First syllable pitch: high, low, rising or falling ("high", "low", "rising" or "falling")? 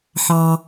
low